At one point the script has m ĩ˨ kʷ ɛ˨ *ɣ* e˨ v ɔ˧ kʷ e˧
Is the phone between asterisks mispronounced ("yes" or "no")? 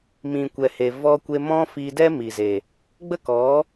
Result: yes